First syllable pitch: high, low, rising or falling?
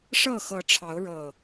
falling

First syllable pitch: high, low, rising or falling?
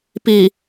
low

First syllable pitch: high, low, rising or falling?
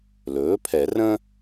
rising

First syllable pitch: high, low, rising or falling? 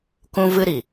high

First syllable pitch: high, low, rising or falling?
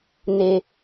low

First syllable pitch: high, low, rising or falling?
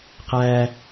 high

